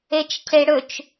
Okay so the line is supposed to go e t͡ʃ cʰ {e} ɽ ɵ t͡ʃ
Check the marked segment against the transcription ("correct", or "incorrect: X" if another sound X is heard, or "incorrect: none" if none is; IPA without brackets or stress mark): correct